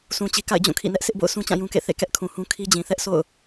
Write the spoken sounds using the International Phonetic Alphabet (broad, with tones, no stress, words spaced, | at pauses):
sũ˨t͡ɕi˨ ka̰˦˨ɪ̯d͡ʑũ˦˨ kʰḭ˦˨nɛ˦ʔ sɪ˦ʔbo̰˦˨ʊ̯sũ˦t͡ɕã˦˨ jũ˦kḛ˦˨ θḛ˦˨kɛ˦ʔkʰũ˨hũ˦ kʰi˦d͡ʑĩ˨ θɛ˦ʔsʰo̰˦˨ʊ̯